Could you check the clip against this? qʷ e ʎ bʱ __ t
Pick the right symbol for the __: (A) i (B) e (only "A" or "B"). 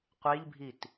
A